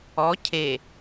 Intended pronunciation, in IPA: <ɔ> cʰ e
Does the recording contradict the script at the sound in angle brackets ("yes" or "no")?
no